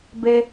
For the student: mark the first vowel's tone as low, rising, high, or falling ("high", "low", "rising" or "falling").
high